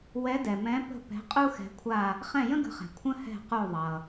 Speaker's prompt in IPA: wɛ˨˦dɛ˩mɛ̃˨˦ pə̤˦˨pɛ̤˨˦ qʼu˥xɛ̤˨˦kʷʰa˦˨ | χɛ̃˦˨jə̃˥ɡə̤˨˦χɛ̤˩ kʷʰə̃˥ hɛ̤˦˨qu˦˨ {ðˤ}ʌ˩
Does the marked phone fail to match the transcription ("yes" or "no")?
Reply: no